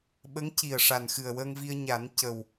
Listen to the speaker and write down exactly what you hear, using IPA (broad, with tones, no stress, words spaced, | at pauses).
ɓə˧˥ŋci˨˩ə̯ ʂa˨˩nxɨ˨˩ə̯wəː˧ŋvi˧ə̯ ɲa˨˩˦n cə˨˩w